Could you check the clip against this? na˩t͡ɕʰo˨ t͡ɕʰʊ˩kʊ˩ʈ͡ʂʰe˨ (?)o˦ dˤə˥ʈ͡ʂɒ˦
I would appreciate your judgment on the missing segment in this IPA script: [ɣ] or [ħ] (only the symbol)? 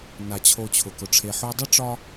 ħ